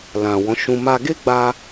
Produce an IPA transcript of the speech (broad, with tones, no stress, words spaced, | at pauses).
lã˨wɔ̃˨˦ʃũ˧ ma˧ɡe˦ɡ͡ba˧